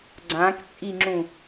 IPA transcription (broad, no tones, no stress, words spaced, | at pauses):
ɡ͡ǀãkt͡sʼiŋ͡ǁũ